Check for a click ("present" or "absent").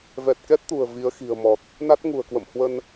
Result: absent